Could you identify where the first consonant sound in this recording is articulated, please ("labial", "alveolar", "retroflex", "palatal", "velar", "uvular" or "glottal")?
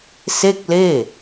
alveolar